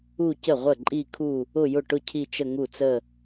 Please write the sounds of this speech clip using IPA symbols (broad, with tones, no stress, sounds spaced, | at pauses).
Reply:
u˥˧ c ə˥˩ ʁʷ ə˥˩ ǃʼ i˥˧ kʰ u˥˧ | ʊ˥˧ j ʊ˥˩ ʈ ʊ˥˧ cʰ i˥˧ t͡ʃ ə˥˧ ŋ u˥˩ t͡s ə˥˧